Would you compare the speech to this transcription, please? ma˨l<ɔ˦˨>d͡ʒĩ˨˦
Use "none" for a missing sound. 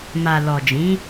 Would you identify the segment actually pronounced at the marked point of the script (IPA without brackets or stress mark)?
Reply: ɔ˨